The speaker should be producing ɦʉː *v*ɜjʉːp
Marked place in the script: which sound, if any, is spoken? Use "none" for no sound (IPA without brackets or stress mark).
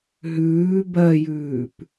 b